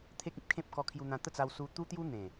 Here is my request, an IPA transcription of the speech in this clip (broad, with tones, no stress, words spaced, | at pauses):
t̪ʰe˦k̚ĩ˦p̚kʰẽ˦p̚ kɔ˧kʰju˧n̪ã˧ t̪ə˥˧t͡sa˧w su˧t̪u˦t̪ju˦n̪ẽ˨˩